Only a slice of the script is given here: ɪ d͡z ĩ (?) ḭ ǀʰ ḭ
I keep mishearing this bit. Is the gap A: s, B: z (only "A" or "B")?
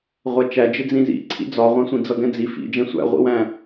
B